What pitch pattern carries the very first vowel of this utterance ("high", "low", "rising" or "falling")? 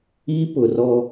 high